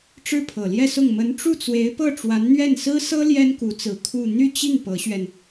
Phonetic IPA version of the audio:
ʈ͡ʂɻ̩˥˩pʰɤ˨˩ljɛ˥˧sʊ˥˩ŋ mə˧˥nʈ͡ʂu˥˩t͡swe˧˥ɪ̯pɤ˥˩ ʈ͡ʂwa˧˥nn̪ɥɛ˥˩nsɹ̩˥ sɤ˥ ljɛ˥nku˧˥t͡sɹ̩˧˥ kʰu˥˧ n̪y˥˧t͡ɕi˥˩ŋ pɤ˧˥ɕɥɛ˧n

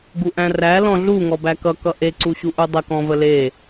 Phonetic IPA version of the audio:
ɡuʔæ̃ræ lɔ̃ɮu ŋɔbækʌ kʌʔe ǀuɕuʔudˤə kɔ̃vəle

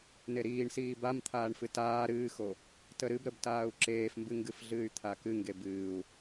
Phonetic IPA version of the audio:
neɾiːɳsiː bamt̪ʰaːɳ fɨtaː ɾɨːxo | təɾɨbɾəbtaːu̯ ǁeːfmbɨŋɡɨfɮɨːy̯ t̪ʰakɨŋɡe bɨːu̯

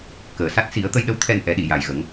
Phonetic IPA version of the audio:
kəː˨˩ sa˦˥t̚ si˨˩˦ə̯t̪ə˧jɗə˧˥w t̪ʰɛ˧nʔɛ˨˩˦ɗi˨˩˨ ja˨˩jɣə˨˩˦ŋ

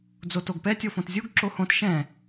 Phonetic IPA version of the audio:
d͡zotoɡpɛ tʲofõtzʲuɡ ǁohõt ʃɛ̃

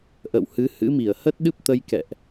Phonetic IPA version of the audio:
ʔə̰˧˨whɨ˨˦ hɨ̰˧˥mi˧˩ə̯ hə˦˥t̚ɗɨ˦˥p̚t̪ə˧j kɛ̰˧˨ʔ

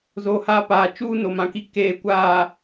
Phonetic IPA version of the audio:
zo˨haː˦paː˨ t͡ʃuː˦no˨mã˨ki˦ keː˨kʷaː˨

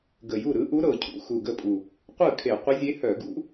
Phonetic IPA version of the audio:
ɡə˨˩ju˥˩ɾɯ˧˥ʔu˧˥ ɾɤ˨˩cʰṵ˥˧ xu˨˩ɡə˥˩pʼu˨˩ | qʷɯ˥˩kʰe˧˩˧ qʷə˧˥zʲe˧˥ hœ˧˩˧ɡṵ˧˥

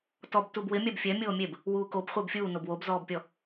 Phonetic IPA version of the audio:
tɔb tubwɪ mʲabfʲɛ mʲoːmʲeb | wuːkob χʷɪːbfʲuːnob wobzɔːbpʲɔ

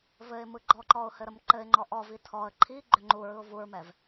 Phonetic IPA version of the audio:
vɘɪ̯ mɯɡ͡ǃɔǃɔʊ̯ hɘɾəmǃɘɪ̯ŋ͡ǃɔ ʔɔvi tʰɔə̯ ǃʰiɡ͡ǃʏ ŋ͡ǃuɹɯʊ̯ vuɹmɛv

